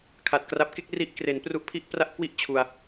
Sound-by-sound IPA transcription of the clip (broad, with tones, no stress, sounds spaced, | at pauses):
kʰ a˨˩ t̚ k r a˦˥ p̚ k e˥˩ k̚ r i˦˥ ʔ k r e˩˦ n p r u˦˥ ʔ pʰ i˥˩ ʔ p r a˥˩ ʔ k w i˥˩ ʔ t͡ɕʰ u˧ a̯